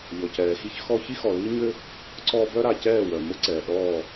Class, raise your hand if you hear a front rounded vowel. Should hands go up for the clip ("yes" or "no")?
yes